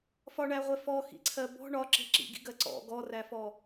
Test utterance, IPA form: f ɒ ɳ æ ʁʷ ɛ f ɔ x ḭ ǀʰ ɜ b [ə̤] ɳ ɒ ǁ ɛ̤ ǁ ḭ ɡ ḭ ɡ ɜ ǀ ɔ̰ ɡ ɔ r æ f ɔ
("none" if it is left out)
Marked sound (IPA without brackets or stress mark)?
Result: ɔ̤